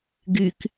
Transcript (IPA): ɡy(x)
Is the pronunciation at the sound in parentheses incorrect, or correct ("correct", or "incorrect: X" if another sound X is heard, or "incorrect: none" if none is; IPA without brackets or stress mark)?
incorrect: k